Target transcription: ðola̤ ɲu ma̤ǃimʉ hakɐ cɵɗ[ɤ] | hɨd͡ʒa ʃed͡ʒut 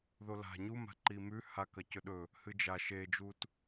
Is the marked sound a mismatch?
yes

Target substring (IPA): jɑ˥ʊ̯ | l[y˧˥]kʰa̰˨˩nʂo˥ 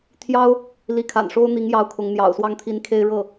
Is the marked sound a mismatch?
yes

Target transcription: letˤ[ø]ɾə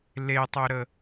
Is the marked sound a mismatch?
no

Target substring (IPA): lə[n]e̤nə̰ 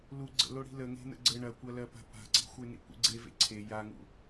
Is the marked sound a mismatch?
yes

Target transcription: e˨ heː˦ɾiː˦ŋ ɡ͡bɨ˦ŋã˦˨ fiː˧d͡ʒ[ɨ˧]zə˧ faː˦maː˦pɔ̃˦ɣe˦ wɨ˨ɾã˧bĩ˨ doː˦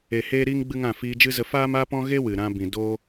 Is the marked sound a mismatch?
yes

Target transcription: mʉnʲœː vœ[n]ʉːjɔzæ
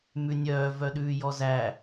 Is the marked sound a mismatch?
yes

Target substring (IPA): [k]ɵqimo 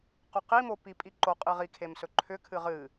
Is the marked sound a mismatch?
yes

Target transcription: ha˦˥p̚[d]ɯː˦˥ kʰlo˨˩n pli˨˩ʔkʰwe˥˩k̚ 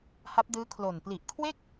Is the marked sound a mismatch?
no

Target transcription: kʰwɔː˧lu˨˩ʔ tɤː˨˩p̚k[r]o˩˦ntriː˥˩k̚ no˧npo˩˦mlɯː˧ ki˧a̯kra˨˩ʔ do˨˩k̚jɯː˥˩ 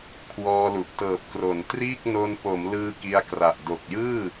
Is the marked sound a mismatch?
no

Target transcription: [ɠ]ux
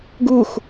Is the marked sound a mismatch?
yes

